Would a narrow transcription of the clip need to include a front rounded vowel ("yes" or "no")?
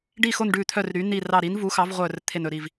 yes